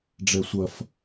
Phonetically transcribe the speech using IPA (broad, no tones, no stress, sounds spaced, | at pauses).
ɖ͡ʐ ɛ sʷ ɐ f